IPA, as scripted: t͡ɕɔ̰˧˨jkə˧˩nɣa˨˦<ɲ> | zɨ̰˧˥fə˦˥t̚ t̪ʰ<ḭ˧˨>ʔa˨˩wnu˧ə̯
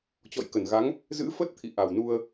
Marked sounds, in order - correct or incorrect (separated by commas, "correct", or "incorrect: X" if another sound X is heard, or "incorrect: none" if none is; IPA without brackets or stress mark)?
incorrect: ŋ, correct